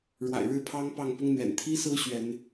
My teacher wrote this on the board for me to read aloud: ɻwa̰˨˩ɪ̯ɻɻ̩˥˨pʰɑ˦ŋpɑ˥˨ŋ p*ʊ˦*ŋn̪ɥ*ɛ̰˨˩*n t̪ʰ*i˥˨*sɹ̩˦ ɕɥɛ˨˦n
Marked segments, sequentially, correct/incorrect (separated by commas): correct, correct, incorrect